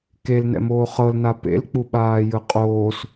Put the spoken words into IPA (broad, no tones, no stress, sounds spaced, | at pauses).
k e l n ɛ̰ m oː χ ɤ l n a p ḛ l k͡p u ɓ aː j ɯ qʼ oː s